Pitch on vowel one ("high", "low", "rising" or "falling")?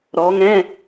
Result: rising